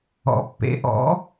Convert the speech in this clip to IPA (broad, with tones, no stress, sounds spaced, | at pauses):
ɔ̰˨˩˦ pː ḛ˩˥ ʔ ɔ̰˩˥